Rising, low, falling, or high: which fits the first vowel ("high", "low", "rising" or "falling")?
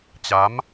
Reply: rising